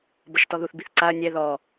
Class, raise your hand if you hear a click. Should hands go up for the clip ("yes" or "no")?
yes